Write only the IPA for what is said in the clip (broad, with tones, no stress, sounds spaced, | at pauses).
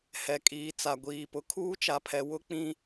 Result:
h ɛ˨ kʼ iː˨ t͡s a˨ ɡʷ iː˨ p ʊ˨ kʰ uː˦ t͡ʃ a˨ pʰ ɛ˨ w ʊ˦ k͡p ĩ˦